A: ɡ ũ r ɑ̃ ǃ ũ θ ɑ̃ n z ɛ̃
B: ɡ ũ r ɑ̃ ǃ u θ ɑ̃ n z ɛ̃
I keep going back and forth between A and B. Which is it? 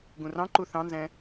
B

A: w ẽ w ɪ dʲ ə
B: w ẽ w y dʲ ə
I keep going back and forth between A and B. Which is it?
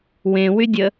B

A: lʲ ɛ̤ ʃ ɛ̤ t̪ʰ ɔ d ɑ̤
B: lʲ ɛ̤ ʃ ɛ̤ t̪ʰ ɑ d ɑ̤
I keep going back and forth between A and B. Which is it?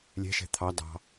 B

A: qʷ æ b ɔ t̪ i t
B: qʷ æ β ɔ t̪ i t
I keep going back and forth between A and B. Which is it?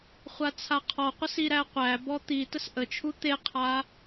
A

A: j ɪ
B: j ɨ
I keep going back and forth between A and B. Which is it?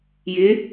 A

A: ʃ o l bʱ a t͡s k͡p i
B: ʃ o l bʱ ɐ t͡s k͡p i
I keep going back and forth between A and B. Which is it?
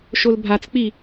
A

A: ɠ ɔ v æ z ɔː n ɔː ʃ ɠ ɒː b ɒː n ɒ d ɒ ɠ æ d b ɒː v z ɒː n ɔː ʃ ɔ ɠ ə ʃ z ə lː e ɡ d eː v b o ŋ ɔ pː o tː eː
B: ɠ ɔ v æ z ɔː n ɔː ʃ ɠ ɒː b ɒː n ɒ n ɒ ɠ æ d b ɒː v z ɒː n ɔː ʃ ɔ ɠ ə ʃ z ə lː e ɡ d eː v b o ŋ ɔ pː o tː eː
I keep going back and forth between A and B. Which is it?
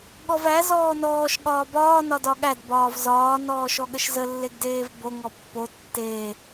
A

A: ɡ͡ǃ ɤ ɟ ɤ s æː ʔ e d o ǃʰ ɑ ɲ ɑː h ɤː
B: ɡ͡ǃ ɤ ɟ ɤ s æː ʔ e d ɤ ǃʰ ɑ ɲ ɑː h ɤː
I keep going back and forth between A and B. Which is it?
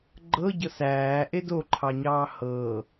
A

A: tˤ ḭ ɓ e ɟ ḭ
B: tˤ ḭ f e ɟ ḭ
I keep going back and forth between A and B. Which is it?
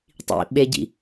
A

